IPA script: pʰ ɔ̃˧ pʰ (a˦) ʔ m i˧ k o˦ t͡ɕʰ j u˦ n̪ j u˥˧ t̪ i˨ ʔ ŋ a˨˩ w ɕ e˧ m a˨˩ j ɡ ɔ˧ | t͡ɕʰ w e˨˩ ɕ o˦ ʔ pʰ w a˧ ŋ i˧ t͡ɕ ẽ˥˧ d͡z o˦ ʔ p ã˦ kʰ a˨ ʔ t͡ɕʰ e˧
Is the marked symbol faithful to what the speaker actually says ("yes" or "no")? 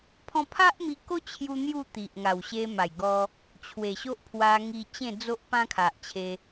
yes